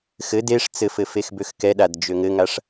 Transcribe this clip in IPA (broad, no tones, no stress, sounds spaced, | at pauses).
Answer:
x ɘ d e ʂ t͡s ɘ f ɘ f e x b ø x k ɛ ɗ a d d͡ʒ ø ŋ ɘ ŋ a ʂ